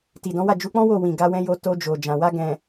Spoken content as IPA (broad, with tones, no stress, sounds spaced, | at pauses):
t i˨ d ɔ̃˨˦ w a˦˨ d͡ʒ u˨˦ k͡p ɔ̃˦ w o˦˨ w ĩ˨ ɡ a˧ w ɛ̃˧ j o˧ t o˧ d͡ʒ o˨ d͡ʒ ã˨ w a˧ ɡ ɛ̃˨